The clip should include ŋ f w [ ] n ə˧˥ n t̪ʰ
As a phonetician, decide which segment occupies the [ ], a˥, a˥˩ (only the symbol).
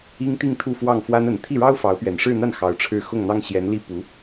a˥